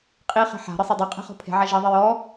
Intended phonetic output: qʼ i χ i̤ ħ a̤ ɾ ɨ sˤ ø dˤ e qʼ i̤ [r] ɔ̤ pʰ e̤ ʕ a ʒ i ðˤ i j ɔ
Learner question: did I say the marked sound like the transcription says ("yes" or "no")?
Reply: no